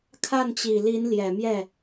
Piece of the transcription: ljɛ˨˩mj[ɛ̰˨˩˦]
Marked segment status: incorrect: ɛ˥˩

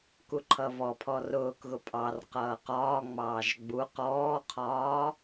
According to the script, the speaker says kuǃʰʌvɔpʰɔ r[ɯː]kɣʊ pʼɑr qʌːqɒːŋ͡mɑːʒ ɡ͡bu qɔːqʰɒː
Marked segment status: incorrect: ʊː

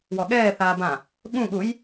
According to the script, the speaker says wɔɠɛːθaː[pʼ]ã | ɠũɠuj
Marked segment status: incorrect: b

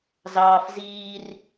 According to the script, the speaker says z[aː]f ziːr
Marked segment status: incorrect: ɑː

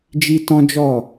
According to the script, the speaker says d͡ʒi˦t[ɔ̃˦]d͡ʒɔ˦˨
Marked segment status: correct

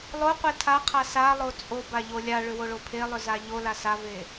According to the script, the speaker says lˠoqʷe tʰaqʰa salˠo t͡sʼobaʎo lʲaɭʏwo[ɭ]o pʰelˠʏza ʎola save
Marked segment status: correct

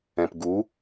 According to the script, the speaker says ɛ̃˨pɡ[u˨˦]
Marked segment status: correct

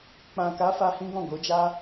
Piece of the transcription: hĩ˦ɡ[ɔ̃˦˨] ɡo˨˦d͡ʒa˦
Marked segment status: correct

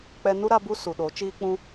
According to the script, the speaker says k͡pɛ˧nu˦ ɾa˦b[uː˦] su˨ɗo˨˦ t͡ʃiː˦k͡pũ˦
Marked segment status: incorrect: u˦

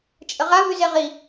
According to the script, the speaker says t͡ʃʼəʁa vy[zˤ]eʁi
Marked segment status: incorrect: z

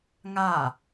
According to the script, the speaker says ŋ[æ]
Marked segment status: incorrect: a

